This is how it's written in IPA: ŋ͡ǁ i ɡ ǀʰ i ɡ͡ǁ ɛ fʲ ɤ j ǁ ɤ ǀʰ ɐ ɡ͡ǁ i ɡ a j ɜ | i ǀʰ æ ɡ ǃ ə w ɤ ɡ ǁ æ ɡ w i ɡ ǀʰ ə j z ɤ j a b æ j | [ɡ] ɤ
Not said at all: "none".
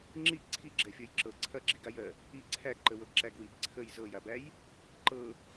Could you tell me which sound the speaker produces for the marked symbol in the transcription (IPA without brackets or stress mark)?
ǃ